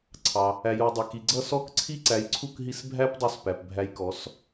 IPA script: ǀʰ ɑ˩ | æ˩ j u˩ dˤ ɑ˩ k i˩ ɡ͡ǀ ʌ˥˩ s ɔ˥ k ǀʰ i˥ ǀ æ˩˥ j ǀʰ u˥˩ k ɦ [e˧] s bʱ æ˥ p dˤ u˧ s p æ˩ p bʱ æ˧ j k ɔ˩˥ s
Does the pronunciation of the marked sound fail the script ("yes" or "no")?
yes